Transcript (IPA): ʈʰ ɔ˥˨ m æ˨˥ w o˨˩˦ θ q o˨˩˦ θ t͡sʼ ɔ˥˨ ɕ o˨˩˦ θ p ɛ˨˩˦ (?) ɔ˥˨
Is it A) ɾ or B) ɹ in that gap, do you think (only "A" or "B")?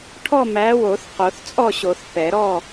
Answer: A